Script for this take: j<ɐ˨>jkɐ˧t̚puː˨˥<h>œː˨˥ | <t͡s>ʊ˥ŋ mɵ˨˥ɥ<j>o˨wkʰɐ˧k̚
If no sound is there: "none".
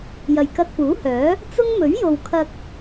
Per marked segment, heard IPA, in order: ɐ˨, h, t͡s, j

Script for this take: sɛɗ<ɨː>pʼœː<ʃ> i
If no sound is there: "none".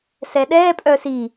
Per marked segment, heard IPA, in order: ɛː, s

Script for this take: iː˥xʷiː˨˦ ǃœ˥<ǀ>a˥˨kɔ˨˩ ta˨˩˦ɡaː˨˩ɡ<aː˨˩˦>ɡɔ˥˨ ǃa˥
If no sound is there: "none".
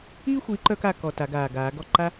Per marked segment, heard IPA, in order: k, aː˨˩˦

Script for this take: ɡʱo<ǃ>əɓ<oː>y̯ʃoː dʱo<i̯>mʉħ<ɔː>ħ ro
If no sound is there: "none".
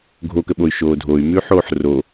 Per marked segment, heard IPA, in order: k, o, y̯, oː

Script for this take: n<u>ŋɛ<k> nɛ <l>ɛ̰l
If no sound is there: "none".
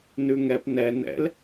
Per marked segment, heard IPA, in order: ʉ, p, n

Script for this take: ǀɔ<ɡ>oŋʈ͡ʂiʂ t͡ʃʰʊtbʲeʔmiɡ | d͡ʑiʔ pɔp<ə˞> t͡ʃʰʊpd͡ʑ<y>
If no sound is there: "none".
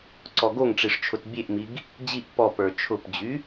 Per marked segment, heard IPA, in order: ɡ, ə˞, y

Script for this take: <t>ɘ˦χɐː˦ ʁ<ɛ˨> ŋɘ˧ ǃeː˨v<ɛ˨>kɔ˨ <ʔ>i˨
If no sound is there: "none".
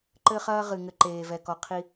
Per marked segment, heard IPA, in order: ǃ, ɨ˨, ɛ˨, qʰ

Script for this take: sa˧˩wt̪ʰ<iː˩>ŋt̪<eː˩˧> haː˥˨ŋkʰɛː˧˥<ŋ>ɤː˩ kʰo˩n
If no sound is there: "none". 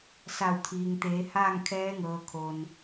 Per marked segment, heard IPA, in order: iː˩, eː˩˧, ŋ

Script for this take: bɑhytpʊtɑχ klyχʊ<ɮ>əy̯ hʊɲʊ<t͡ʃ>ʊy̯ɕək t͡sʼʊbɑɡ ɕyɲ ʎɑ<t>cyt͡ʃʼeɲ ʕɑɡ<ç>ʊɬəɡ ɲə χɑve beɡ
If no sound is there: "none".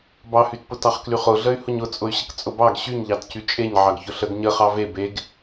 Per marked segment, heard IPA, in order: ɮ, t͡sʼ, t, ç

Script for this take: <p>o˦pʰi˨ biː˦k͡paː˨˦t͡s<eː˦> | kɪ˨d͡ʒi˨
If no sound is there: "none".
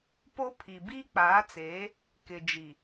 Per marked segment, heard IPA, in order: p, eː˨˦

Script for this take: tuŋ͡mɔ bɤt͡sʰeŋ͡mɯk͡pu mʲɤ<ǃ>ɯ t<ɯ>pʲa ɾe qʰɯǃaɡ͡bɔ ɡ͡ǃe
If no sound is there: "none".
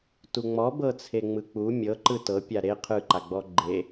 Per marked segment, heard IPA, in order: ǃ, ɤ

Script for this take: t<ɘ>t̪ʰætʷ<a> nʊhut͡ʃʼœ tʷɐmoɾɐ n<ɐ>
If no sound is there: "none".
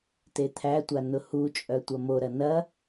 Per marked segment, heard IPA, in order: e, a, ɐ

